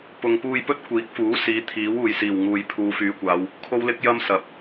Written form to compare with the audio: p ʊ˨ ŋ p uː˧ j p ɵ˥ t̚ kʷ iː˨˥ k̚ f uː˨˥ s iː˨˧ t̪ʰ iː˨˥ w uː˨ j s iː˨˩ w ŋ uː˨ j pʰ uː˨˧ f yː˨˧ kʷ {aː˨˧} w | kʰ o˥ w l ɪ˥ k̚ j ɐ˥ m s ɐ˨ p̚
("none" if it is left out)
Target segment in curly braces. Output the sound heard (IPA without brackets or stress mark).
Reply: aː˨˧